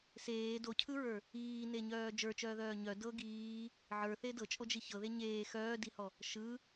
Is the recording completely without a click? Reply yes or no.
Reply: yes